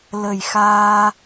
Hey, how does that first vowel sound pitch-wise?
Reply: low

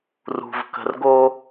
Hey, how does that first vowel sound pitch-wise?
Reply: low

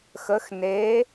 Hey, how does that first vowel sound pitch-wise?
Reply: rising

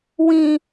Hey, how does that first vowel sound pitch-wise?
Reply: low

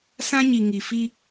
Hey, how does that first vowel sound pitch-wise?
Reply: high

